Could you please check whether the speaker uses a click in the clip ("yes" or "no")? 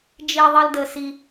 no